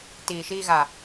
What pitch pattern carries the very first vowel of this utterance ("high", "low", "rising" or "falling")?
low